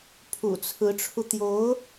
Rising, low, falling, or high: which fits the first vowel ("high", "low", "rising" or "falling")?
low